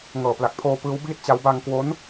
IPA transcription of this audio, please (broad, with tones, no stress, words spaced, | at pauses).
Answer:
ŋɤː˨˩pla˨˩k̚pʰoː˧ pɯː˦˥wbiː˥˩t̚t͡ɕa˦˥w baː˧ŋkwo˦˥n